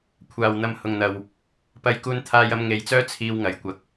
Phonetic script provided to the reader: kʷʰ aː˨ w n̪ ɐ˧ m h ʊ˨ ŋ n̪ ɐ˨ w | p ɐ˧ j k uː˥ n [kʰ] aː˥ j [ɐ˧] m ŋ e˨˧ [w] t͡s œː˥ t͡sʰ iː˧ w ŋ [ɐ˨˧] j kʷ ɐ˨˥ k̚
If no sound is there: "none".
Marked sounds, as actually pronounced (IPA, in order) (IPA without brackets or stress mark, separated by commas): t̪ʰ, ɐ˥, j, ɐ˨˩